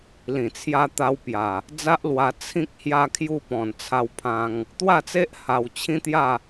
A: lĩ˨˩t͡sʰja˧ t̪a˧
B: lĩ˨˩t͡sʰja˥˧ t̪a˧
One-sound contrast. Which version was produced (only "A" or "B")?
A